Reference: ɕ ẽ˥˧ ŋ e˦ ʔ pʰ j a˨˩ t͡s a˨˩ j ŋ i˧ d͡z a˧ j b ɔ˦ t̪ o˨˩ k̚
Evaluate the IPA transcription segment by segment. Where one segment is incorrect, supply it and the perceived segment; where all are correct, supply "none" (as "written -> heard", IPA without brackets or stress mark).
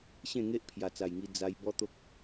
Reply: o˨˩ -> o˦